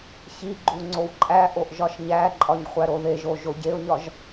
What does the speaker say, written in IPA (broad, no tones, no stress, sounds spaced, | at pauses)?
ç i ɡ͡ǃ u ŋ͡ǀ o w ǃʼ æ ʔ o ʔ ʒ ɒ ʃ ɲ æ ǃʼ ɒ ɲ χʷ æ ɾ o ð e ʒ o ʒ o ɟ e ʊ̯ ɲ ɒ ʒ